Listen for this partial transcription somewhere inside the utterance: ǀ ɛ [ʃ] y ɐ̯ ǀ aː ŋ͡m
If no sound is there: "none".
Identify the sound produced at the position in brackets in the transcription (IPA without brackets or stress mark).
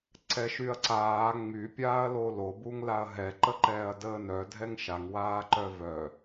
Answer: ʃ